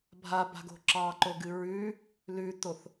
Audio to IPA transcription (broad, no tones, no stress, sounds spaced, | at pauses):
bʱ a b a̤ ɡ o̤ ǁ ɑ ǃ o ɡ ɨ ɹ ʉ | l ʉ t o θ